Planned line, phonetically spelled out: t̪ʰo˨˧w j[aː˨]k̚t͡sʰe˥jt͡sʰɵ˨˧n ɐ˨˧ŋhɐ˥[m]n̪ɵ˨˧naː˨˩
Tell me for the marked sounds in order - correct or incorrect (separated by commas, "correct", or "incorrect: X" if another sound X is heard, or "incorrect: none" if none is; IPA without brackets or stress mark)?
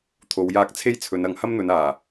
incorrect: aː˧, correct